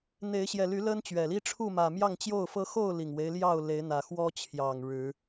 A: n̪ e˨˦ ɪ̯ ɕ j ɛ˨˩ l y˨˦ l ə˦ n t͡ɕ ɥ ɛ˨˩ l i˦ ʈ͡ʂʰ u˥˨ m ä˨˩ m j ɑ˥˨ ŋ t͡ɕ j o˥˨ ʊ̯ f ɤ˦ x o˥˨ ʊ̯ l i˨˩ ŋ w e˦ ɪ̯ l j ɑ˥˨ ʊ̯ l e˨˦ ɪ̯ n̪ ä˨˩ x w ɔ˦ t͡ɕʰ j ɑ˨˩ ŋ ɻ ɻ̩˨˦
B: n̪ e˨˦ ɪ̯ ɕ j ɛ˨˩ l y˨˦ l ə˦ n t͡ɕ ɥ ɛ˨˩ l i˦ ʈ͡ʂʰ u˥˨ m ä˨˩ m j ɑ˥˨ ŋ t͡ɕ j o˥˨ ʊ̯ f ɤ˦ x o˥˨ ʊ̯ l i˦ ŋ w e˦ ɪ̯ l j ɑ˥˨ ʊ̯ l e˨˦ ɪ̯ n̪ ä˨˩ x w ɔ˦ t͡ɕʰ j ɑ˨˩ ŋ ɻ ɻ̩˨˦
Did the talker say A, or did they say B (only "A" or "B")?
A